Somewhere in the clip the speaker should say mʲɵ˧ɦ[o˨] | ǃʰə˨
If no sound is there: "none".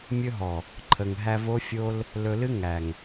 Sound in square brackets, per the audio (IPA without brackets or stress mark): ɔ˨